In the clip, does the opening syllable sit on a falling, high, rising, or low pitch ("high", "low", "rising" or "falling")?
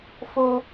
high